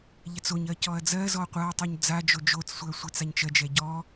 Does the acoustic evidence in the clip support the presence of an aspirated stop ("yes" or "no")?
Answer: no